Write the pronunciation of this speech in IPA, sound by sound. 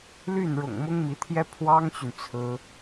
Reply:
ly˥˩n ɻʊ̰˨˩ŋ mʊ˥ŋmi˧˥t̪ʰjɛ˥ pʰwɑ˥ŋt͡ɕy˨n t͡sʰɹ̩˥

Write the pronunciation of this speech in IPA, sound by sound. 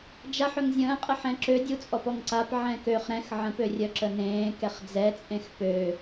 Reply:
d͡ʒaħ œŋzʲə̃ːqʼəħɛ̃ ǁø dʲut͡sʼɔpɔŋǀap ʕɛ̃køχ ɾɛ̃x ʕə̃pørʲœ ǁənẽː kɛχd͡zɛt͡sʼẽx pø

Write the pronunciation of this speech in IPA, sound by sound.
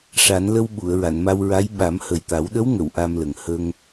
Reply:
ʂa˨˩˦nlə˧w ɓu˨˩˨ə̯ ɹa˨˩˨nma˧wɹa˧˥j ɓa˨˩˦mhə˨˩jt̪a˨˩˦w ɗə˧˥wŋə˨˩˨w ʔa˧mlə˨˩ŋ hə˧ŋ

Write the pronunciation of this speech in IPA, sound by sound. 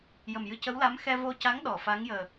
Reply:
jə˨˩mjɨ˧cə˧˥wla˧˥m xɛ˧vo˧ca˧˥ŋ ɗɔ˨˩˨fa˧˥ŋjəː˨˩

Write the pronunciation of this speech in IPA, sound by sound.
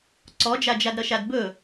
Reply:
ǀɔd͡ʒad͡ʒadɾʌ ʃadbɵ

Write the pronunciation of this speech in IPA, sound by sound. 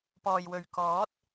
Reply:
pɔː˨jwɵ˨ɥ kɔː˨˥t̚

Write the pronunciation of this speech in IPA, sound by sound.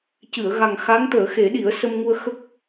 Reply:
cɨ˨˩˨ə̯ɣa˨˩ŋ xa˧˥ŋt̪əː˨˩˦xe˨˩˦ ɗi˨˩˦ə̯ sə˧mŋu˧ə̯xə˦˥k̚

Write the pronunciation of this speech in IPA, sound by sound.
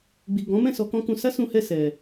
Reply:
ɡ͡bi˨ɡɔ̃˨˦mɛ̃˦˨ sɔ˧kɔ̃˦kũ˧ sa˦sũ˧hɛ˧ sɛ˧

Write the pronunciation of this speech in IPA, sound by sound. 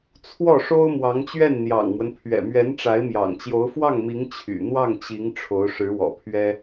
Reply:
t͡sʰwɔ˥˩ʂo˥ʊ̯ mwɑ˧˥ŋt͡ɕɥɛ˥˩nn̪jɑ̰˨˩ŋmwə˦n pʰɥɛ̰˨˩mɥɛ˧˥nʈ͡ʂa˧˥ɪ̯ mjɑ̰˨˩ŋt͡ɕjo˧˥ʊ̯ fwɑ˥˩ŋmi˧˥ŋ t͡ɕʰy̰˨˩ n̪wɑ˥˩ŋt͡ɕi˧˥ŋ ʈ͡ʂʰo˧˥ʊ̯ʂɻ̩˧˥wɔ̰˨˩pʰɥɛ˥

